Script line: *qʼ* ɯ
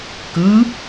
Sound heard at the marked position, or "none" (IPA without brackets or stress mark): k